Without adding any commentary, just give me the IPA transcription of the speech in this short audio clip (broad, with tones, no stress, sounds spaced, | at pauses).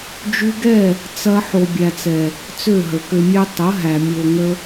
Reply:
d͡ʒ ʉ˧ ɡ ɛ˦˨ | t͡s ɐ˧ ħ o˨ bʲ æ˨ t͡s ɛ˨ | t͡s ø˦˨ ɦ ə˨ k ø˧ mʲ ɛ˦ tˤ ə˨˦ ɦ æ˨ mʲ o˨ ŋ ə˧